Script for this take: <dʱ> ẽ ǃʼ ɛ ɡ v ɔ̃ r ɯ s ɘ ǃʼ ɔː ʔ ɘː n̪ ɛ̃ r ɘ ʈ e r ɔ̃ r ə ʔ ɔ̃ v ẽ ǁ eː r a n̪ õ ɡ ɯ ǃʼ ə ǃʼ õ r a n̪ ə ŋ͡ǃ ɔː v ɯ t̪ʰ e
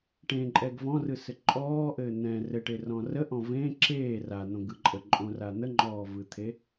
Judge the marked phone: incorrect: ʈ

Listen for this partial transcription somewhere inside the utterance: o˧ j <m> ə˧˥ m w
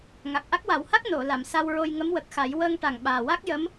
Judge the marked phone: incorrect: ŋ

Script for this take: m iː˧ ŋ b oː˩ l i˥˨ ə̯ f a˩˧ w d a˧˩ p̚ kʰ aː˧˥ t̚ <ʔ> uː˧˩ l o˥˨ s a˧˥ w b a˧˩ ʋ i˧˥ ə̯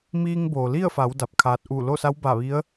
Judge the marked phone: correct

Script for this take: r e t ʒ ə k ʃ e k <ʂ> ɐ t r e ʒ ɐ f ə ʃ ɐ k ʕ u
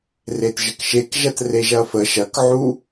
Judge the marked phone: incorrect: ʒ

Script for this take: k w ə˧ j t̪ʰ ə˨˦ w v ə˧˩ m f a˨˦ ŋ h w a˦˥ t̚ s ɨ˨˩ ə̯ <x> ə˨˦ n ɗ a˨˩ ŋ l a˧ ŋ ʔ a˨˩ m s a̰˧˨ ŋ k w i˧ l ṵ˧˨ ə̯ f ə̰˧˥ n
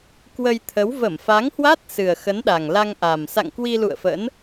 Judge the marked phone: correct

